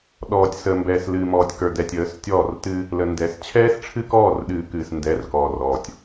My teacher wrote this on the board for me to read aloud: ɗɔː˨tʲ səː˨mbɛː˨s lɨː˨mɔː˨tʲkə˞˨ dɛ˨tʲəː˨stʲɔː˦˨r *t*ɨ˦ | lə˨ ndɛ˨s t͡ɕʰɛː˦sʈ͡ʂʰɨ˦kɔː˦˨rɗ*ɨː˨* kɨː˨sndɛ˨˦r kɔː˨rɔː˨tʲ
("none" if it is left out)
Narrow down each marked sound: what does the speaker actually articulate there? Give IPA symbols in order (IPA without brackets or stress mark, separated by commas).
t, ɨː˨